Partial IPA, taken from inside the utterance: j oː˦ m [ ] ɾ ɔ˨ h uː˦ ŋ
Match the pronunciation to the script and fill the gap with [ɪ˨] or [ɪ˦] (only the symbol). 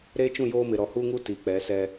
ɪ˨